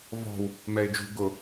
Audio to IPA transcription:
v ɔ̤ w | m ɛ ɪ̯ d͡ʒ ṳ ɡ ʊ

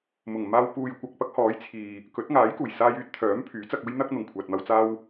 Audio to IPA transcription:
m ʊ˨˩ ŋ m aː˧ w p uː˨ j kʷ ɐ˨ k̚ p ɐ˥ k̚ h ɔː˨˥ j t͡sʰ iː˨ | k ɵ˨˥ t̚ ŋ aː˨˥ j k uː˨˩ j s aː˧ j yː˥ t̚ t̪ʰ œː˨˥ m pʰ yː˨˥ t͡s ɐ˧ k̚ uː˥ j n̪ ɐ˥ k̚ n̪ ʊ˨˩ ŋ kʷʰ aː˨ t̚ m ɐ˧ w t͡s aː˥ w

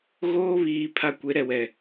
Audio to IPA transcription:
ɣ oː˦ β iː˨ pʰ a˦ kʷ e˨˦ ɾ ɛ˨ w ɛ˨

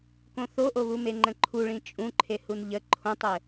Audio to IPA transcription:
k õ θ o ʔ o β u m e ŋ͡ǃ ə̃ ǃʰ u ɭ ĩ t͡ʃʼ ũ ǃʰ e h u n ʎ ə ǃʰ õ tˤ ɘ

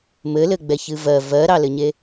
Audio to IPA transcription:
m ɘ l ɘ ɡ͡b ɛ ç ɨ v ɜ v ɜ ɾ ɑ l ɘ ɲ e

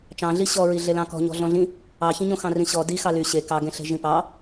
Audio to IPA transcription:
t͡ʃ ɑ̃ ɮ i ɕ ɔ ɹ i ɮ e l ɑ̃ k ɔ̤ ɲ ɔ̤ ɮ ɔ̃ ɮ ĩ | ɑ ç ĩ ɲ õ x ɑ̃ r ĩ ɕ ɔ d i x ɑ l y ɕ e k ɑ ɡ ẽ ɬ e̤ ʒ ĩ p ɑ

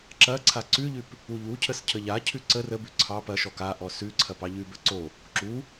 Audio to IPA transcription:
ǁ ɐ ǀʰ a ǀ ʉ ʎ ʉ p | u ʎ u cʰ ə s cʰ ə ʎ a cʰ ʉ ǀ ə r ə b ʉ ǀʰ ɑ p ɐ ʃ ɔ k a ʔ ɔ s ʉ ǀʰ ɐ p ɑ ʎ ʉ b ə ǀ o | ǁ u

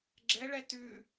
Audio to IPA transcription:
ɡ͡ǁ ɛ ɭ ɛ t ʉ

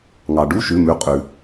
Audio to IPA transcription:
ŋ ɑ˩ ɖ u˧˥˧ ʃ ʉ˩˧˩ m ʉ˩˧˩ qʼ ʉ˩

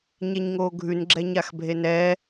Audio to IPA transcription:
ɲ ɛ ɲ ŋ oː ɡʱ ʉ n ɡ͡ǁ ɛ ɲ a x bʱ e n ɛ

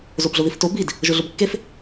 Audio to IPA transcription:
z o b ɮ ʊ ð i f t o b i d | ʒ ʊ ɮ ʊ b kː e f

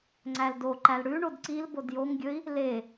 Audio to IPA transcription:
ŋ͡ǀ æ l d o ǃ æ l ɽ ʉ ɳ o d ǀ i l b o d j o ŋ ɡʲ ɵ i̯ | l e

